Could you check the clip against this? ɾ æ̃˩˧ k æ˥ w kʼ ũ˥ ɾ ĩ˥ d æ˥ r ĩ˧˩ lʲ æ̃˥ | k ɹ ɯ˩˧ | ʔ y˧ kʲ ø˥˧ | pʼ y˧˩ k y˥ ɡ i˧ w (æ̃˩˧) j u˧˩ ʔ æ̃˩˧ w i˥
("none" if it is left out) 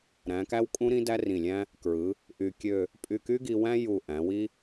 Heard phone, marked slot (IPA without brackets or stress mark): æ̃˥